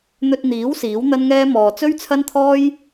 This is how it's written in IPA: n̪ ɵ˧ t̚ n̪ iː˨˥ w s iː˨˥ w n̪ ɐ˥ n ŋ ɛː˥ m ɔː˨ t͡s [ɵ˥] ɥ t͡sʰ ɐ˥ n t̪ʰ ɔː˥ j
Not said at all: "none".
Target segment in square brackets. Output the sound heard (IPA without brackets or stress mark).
ɵ˥